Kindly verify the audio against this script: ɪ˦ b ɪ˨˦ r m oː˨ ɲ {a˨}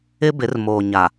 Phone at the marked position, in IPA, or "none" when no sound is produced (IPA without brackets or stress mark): a˨